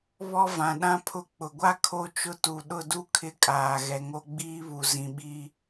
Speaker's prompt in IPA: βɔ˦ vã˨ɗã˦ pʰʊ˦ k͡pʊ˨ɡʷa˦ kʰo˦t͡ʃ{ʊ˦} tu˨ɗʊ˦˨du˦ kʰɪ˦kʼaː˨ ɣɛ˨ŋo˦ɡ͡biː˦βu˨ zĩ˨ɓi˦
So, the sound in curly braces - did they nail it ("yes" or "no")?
yes